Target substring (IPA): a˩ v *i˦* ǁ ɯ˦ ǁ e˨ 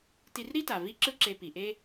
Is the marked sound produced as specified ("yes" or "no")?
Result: yes